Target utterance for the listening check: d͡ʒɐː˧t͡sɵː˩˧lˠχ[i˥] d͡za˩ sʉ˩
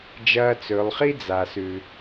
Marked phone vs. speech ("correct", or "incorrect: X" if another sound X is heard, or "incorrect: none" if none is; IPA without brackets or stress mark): correct